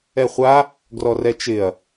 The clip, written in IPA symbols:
ɛ χʷ a | ɡ r ɔ r ɛ t͡ʃ ɪ ɐ̯

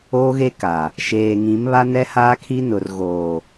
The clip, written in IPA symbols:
oː˦ ɣ e˦ k a˨ | ʃ eː˨ ŋ ĩ˨˦ m β a˦ n ɛ˦ h aː˦ kʰ i˦ n ʊ˨ r ɣ oː˨

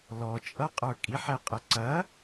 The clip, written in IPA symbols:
l ɔ t͡ʃʼ ʌ qʼ ə˞ kʼ i ħ ɛ qʼ ə ǀ ɐ

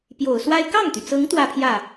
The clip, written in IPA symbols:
p j o˨˩ ʊ̯ s w a˥ ɪ̯ k ɑ˥˩ ŋ t̪ y˩ t͡s ɤ˧˥ ŋ t̪ w ä˥˧ pʰ j ä˥˩

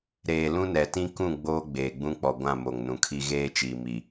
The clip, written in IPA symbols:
ɾ eː˨ l ũ˦ n ɛ˨ t ĩ˦ k ũ˦˨ ɡ͡b oː˦ ɡ͡b eː˨ ɡ͡b ũ˦ k͡p ɔ˨ ɡʷ ã˦˨ m o˨ ŋ n ũ˨ kʰ i˦ ɣ eː˦ t͡ʃ iː˨ m i˨

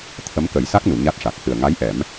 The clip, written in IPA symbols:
t̪ʰ ə˧˥ m k ə˨˩˦ j s a˦˥ k̚ n u˨˩˨ ɲ a˦˥ t̚ ʂ a˨˩ k̚ h ɨ˨˩ ə̯ ŋ a˧˥ j ʔ ɛ˨˩˦ m

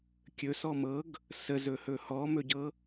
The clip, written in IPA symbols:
kʲ ɵ s ɔ m ɤ ɡ | s ə z ɵ h ɵ h ɔ m ɵ ɟ ɤ

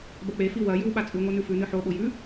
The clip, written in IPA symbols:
b ɐ k͡p e f i w ɐ j ʉ w ɓ a t͡sʼ ʉ ŋʷ a n ʉ f ʉ n ɨ ħ o ɓ o j ʉ

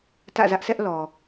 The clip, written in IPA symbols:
t ä̰˦˨ z ä˦ ʔ sʰ ɛ˦ ʔ l ɔ˨

